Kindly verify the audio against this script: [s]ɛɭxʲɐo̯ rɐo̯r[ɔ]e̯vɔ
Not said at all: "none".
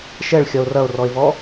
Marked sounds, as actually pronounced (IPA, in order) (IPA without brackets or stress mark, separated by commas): ʃ, ɔ